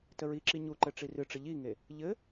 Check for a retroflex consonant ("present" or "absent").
present